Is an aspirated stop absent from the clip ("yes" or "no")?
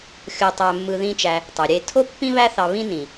no